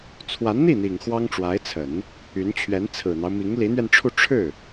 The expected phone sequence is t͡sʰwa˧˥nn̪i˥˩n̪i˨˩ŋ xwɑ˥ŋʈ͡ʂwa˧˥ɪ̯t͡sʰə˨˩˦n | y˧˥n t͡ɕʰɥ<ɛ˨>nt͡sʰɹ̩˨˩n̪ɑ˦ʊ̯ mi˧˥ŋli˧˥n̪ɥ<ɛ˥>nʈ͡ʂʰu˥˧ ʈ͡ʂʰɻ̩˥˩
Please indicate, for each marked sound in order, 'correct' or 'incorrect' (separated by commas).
incorrect, incorrect